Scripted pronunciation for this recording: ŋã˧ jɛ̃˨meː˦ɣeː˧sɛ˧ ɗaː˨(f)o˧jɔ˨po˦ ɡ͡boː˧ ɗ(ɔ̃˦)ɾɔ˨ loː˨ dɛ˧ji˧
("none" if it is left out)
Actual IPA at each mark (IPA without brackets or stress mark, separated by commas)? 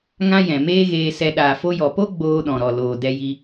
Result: f, ɔ̃˨